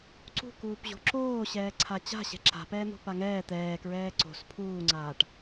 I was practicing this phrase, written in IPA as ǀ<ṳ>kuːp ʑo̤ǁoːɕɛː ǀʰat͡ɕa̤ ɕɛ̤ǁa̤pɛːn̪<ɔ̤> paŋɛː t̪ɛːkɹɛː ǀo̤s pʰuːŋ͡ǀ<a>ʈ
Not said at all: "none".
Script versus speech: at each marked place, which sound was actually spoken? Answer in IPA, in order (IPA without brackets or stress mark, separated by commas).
ṳ, o̤, aː